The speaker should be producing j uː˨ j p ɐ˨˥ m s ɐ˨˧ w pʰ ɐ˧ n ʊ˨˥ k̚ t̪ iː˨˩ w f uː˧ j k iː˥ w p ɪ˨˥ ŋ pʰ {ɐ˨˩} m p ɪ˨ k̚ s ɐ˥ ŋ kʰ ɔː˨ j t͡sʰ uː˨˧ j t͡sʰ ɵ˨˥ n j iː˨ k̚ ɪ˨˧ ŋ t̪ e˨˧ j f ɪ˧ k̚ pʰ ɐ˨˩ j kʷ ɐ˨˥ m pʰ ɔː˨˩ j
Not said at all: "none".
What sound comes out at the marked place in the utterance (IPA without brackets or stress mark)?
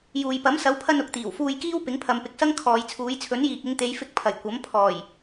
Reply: ɐ˨˧